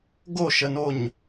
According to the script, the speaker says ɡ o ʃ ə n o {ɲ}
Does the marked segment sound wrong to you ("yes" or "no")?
no